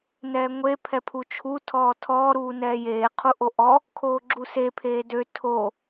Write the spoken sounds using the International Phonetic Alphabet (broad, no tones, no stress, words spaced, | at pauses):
nɛːŋʷe pʰɛpʰut͡ʃʰu tʰɔːtʰɔː ɾuːnɛːjeː qʰuʔoʔɔ | kʰoːɡ͡ǁuse pʰeːdø tʰo